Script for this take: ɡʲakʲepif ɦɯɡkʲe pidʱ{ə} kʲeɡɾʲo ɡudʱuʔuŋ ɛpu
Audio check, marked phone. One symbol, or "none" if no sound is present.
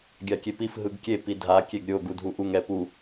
a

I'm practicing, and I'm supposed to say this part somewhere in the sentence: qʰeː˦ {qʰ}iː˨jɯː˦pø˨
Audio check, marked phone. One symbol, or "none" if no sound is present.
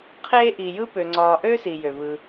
ʔ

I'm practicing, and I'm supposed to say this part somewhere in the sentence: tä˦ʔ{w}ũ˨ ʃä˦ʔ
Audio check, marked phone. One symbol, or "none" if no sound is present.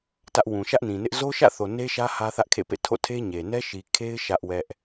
w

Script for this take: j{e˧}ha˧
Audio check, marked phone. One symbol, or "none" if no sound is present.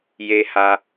e˧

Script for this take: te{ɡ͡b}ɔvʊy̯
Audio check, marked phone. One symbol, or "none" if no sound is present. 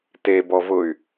b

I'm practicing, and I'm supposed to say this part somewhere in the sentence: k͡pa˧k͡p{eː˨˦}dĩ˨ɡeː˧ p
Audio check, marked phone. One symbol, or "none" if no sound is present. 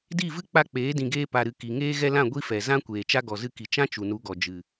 eː˨˦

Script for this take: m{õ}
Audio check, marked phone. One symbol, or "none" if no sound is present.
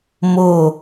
o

